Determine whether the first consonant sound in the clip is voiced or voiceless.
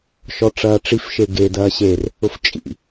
voiceless